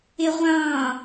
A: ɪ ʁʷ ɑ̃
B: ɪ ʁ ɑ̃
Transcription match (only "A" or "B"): A